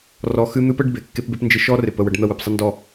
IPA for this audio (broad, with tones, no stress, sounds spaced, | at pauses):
r ɔ˧ x ɨ˦ n̪ ɨ˦ p ə˦ ɖ b e˨ kː e˦ p b e˦ p n d͡ʒ ɨ˧ ʃ ɔ˦ r ɪ˨ p ə˧ w ə˧ ɖ n̪ ə˦˨ w ɨ˨ p sˤ ɪ˦ n d ɔ˦˨